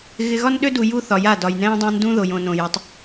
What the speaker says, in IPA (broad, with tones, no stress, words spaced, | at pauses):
ɣɪ˨ɣɒ˦nɗø˦du˨ ju˦θɒ˨ja˦˨ dɒ˨jnɛ̃ː˦dˤã˦ndũ˦ ðo˨jõ˨nõ˨ jɪ˨˦tˤ